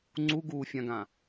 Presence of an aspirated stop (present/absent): absent